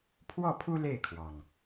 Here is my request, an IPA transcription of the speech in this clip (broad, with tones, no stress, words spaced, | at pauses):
pʰwɔ˥˨pʰu˦ le˥˨ɪ̯kʰwɑ˩ŋ